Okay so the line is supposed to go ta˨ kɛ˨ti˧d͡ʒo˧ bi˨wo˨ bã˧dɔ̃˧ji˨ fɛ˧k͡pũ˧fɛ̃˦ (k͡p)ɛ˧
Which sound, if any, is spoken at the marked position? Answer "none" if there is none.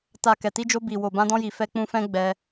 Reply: ɡ͡b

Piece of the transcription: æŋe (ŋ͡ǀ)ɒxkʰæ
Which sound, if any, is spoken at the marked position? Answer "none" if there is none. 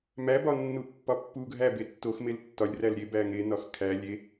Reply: n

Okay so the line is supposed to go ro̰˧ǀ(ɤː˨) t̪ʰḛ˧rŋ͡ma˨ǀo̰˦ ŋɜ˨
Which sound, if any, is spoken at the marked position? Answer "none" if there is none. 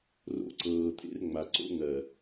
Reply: ɤː˨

